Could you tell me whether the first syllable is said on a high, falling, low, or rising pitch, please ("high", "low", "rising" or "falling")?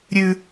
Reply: low